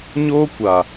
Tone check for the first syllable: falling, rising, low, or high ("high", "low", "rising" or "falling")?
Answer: high